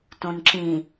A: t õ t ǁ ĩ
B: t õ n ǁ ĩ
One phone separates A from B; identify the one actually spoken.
B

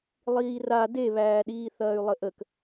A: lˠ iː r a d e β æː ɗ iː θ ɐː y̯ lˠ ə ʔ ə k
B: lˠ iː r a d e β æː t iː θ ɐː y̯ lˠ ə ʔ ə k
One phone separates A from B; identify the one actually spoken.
A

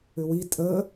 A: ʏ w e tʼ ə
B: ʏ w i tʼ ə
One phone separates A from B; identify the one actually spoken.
B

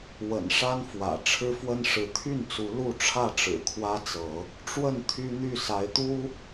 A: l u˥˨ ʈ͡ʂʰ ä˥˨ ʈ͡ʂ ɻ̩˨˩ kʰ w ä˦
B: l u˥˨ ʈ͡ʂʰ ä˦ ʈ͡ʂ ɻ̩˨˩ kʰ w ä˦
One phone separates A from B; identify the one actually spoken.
A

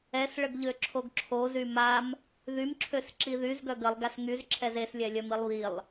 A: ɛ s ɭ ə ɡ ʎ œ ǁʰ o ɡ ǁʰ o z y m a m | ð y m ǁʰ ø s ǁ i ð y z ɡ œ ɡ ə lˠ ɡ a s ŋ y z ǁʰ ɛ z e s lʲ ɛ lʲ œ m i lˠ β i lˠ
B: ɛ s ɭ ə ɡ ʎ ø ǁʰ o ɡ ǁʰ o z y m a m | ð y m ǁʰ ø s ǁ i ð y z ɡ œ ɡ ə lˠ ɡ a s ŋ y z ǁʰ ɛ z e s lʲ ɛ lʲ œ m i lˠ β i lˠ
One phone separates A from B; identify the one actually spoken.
B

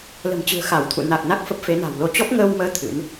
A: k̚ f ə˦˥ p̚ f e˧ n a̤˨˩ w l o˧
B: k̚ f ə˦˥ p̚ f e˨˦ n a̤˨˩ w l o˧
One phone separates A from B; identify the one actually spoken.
B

